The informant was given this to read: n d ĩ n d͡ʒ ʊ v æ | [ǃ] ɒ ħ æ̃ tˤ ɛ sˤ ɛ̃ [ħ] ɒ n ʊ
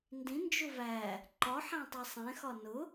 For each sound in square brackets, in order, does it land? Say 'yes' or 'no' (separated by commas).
yes, no